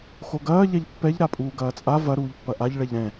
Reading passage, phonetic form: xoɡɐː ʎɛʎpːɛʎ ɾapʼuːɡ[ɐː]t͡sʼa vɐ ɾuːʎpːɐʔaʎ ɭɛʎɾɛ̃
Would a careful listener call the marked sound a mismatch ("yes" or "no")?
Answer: no